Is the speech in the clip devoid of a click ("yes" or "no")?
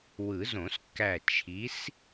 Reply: yes